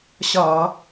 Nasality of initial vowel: oral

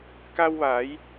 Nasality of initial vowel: oral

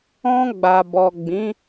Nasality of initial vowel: nasal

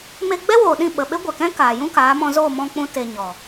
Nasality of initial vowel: oral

